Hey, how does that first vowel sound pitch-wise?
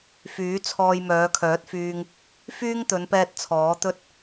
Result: rising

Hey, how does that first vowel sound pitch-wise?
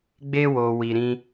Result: high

